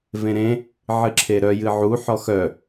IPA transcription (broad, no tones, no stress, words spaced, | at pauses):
vẽɾẽ | ʕɨǁʰeɾœ jɨʕu ħɔxœ